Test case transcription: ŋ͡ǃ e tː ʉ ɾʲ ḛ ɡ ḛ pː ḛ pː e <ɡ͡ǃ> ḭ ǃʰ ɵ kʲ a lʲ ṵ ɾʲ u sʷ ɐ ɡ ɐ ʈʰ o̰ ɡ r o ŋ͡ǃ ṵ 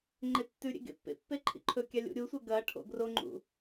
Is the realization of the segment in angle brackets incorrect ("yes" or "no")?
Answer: yes